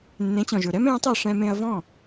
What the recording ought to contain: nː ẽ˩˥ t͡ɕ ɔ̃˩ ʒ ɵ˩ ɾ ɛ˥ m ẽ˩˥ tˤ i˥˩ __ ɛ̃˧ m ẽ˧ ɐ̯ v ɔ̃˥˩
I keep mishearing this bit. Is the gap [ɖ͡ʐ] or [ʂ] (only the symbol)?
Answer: ʂ